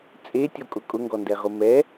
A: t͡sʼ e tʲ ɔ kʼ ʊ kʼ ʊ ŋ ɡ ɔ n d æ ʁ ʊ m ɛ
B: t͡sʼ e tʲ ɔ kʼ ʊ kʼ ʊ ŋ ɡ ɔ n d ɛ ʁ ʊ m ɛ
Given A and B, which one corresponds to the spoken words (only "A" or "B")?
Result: B